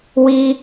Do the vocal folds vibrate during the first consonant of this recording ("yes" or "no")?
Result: yes